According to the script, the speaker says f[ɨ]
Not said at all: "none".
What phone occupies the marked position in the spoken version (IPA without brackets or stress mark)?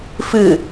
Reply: ɨ